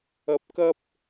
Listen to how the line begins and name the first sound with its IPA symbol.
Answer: ɐ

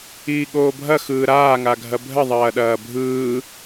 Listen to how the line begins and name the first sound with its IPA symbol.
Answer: iː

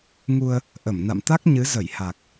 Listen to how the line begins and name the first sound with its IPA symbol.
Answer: ŋ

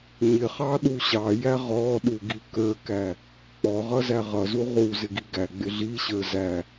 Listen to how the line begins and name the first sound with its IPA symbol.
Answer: ɲ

